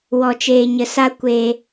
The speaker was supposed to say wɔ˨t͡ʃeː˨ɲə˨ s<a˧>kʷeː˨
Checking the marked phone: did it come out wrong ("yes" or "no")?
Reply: no